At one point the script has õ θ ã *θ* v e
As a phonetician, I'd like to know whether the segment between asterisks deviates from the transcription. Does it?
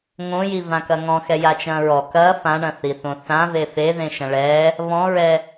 yes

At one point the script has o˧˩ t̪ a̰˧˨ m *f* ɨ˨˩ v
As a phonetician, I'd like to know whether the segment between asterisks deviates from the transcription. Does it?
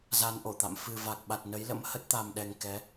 no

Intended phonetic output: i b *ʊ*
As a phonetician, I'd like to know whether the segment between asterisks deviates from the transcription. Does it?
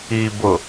no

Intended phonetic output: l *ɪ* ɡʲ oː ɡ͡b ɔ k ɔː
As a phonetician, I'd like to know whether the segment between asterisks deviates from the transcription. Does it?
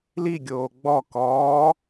yes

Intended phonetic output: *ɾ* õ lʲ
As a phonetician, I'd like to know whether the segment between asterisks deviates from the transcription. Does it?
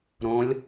no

